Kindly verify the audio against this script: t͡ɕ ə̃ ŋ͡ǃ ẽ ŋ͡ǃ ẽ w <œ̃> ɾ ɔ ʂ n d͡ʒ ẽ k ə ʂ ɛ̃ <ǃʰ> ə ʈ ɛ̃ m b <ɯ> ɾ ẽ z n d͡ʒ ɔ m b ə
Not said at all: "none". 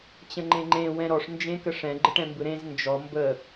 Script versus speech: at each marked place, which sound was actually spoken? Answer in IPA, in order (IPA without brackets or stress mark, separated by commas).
ɛ̃, ɡ͡ǃ, ɯ